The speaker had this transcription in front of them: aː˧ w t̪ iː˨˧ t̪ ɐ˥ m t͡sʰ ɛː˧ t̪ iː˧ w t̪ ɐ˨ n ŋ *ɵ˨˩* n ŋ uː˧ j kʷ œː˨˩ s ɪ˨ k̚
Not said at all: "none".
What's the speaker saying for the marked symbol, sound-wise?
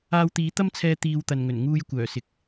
ɵ˨˩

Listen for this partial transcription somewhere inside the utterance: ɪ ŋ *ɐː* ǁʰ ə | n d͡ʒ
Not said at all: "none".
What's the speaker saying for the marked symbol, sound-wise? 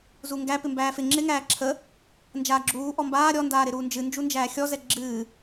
æː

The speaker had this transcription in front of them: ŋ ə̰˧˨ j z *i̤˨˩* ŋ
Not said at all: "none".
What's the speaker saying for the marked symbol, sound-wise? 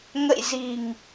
i̤˨˩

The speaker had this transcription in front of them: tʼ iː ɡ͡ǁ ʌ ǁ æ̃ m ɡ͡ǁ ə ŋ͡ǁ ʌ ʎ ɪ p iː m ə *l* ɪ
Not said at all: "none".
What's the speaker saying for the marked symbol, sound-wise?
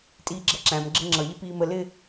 l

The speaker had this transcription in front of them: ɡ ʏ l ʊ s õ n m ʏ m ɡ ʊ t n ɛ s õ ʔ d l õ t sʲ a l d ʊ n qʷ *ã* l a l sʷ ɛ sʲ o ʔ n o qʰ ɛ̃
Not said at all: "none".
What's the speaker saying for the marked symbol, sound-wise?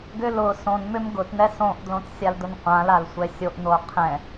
ã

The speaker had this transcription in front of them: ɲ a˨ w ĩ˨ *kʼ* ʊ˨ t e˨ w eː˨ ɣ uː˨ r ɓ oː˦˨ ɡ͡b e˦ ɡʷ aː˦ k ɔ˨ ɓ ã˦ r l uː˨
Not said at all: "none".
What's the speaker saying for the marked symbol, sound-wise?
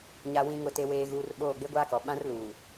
ŋ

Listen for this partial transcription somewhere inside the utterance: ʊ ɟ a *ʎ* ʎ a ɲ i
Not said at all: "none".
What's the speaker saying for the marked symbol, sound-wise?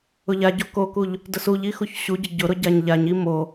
ɲ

